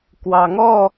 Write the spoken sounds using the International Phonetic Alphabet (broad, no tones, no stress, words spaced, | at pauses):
kwɑŋɔ